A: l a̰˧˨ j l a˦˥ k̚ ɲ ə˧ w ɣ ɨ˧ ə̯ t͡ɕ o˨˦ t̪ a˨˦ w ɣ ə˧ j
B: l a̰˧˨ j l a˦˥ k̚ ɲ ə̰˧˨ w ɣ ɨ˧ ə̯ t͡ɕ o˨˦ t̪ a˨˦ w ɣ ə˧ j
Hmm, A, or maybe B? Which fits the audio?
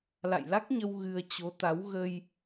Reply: A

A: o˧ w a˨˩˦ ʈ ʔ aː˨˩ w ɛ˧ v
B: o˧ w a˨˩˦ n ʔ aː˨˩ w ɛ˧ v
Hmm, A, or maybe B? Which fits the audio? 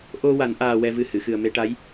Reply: B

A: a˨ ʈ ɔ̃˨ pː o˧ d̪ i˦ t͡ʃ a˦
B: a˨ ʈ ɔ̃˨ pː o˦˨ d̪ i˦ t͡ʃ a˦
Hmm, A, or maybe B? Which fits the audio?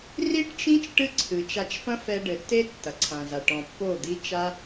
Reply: B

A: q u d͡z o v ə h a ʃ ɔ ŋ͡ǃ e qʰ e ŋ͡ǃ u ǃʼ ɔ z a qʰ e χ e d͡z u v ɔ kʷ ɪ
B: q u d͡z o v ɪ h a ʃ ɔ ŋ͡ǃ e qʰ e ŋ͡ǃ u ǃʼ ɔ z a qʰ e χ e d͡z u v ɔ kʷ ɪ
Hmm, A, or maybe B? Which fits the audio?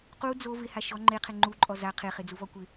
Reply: B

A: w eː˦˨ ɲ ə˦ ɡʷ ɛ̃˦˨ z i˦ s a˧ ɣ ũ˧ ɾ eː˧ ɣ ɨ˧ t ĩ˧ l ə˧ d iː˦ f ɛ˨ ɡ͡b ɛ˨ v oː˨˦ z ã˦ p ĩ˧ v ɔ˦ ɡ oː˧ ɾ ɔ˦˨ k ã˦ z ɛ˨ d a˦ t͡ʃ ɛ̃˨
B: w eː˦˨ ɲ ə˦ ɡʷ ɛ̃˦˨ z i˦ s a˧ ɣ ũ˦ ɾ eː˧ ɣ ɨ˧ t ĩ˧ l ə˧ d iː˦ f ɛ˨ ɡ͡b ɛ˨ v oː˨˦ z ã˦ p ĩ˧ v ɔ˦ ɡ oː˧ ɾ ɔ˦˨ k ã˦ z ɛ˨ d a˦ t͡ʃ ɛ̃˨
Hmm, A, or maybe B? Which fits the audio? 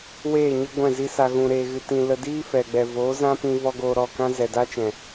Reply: A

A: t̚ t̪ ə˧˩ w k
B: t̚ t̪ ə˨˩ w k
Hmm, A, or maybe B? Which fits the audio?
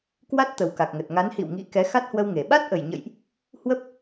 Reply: B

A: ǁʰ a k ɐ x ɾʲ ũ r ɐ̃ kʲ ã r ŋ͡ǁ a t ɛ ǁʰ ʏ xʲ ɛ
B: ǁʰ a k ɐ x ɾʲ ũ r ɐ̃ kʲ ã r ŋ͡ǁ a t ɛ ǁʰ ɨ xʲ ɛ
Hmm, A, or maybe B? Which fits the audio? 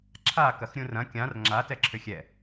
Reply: A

